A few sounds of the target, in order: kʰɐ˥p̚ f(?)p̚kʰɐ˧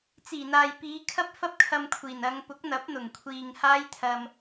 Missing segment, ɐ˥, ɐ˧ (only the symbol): ɐ˥